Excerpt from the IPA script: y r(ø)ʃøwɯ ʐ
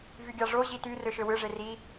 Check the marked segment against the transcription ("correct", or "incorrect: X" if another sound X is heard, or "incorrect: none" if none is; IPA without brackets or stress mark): correct